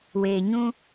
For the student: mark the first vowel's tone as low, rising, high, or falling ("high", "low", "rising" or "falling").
low